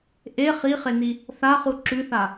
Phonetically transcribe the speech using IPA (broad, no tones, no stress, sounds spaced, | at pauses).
ʔ e χ i χ e n i | θ a χ u ǁ ʉ θ a